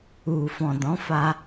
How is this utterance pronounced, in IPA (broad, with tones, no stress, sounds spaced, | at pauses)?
u˨ f ɔ̃˨ d ɔ̃˨˦ f a˧